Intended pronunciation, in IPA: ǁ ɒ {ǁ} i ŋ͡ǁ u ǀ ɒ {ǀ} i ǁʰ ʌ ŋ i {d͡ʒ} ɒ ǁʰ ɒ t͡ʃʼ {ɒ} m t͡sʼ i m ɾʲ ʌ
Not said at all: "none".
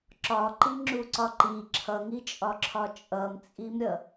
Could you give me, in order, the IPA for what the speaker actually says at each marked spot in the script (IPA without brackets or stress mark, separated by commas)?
ǃ, ǃ, t͡ʃʼ, ʌ